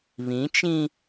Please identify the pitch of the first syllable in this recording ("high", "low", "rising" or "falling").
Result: rising